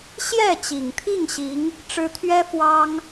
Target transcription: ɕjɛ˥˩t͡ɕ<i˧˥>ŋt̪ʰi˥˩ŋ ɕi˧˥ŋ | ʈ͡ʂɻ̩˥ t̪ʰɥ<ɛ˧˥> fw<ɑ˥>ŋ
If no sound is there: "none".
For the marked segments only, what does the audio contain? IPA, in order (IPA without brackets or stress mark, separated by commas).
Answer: i˨˩, ɛ˥, ɑ˥